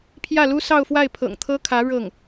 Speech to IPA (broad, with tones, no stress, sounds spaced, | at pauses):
pʰ j ä˥˩ l u˥ s ɑ˥˧ ʊ̯ f w a˥˩ ɪ̯ pʰ ɤ̰˨˩ ŋ t̪ʰ ɤ˥ kʰ ä˧˥ ɻ ɤ˥˩ ŋ